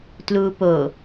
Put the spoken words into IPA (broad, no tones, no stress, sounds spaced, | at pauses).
t l uː p o